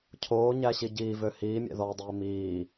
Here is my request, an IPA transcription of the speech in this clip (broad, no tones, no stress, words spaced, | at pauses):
cʰoːɲæɕi ɟiːvø hiːmʲɛ̰ðɔːdˤiː miː